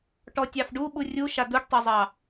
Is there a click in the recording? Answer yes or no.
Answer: no